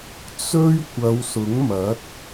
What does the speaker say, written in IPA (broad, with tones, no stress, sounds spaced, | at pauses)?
t͡s ɵ˥ ɥ kʷ ɐ˨˧ w s ʊ˨˥ ŋ m ɐ˨˥ t̚